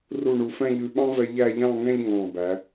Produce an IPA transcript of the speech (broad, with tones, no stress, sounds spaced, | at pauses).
r u˧˩ ɳ u˩˧ f ɛ̃˥˧ ʎ ʉ˧ ɓ ɑ̃˥ v ɛ˧ ʎ æ˥˧ ʎ ɑ̃˥˧ ŋ ɛ̃˥˧ ʎ ŋ ɑ̃˧˩ b æ˩˧